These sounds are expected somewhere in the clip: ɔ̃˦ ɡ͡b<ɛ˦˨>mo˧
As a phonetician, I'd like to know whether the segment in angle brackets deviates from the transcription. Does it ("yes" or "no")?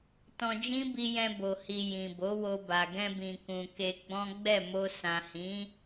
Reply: no